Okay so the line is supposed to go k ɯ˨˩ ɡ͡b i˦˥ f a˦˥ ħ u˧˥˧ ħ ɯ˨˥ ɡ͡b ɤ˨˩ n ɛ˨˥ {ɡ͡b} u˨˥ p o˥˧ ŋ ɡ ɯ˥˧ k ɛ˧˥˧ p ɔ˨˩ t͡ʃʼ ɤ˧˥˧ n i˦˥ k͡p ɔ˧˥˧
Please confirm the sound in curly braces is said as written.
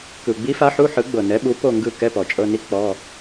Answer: no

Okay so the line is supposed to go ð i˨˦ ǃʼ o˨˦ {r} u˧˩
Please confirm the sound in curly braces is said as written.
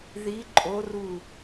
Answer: yes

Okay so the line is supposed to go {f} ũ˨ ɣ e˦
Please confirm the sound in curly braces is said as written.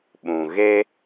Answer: no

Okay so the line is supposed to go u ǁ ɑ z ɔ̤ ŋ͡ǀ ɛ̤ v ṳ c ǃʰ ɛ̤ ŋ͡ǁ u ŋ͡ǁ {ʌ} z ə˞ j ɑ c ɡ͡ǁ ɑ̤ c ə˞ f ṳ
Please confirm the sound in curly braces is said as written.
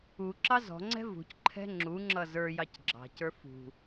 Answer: yes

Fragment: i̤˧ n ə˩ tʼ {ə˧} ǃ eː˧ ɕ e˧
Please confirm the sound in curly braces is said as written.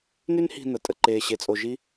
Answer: yes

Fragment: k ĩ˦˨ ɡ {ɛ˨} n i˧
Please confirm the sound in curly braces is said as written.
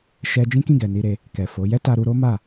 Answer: yes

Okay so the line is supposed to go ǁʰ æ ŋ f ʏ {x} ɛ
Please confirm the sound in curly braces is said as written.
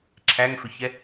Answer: no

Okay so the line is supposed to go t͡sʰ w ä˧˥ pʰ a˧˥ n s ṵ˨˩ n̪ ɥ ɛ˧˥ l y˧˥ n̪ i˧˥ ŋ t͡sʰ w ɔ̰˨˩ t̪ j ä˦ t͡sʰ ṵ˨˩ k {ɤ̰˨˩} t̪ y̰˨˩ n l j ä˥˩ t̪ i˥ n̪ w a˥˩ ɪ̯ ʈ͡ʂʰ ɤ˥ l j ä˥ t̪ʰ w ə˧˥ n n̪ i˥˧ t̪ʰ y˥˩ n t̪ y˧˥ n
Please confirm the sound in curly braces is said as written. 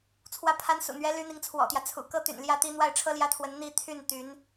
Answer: no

